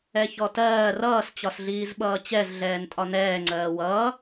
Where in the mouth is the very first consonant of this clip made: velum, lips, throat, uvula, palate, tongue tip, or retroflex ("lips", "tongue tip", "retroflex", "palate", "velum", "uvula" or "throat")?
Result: palate